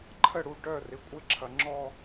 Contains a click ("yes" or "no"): yes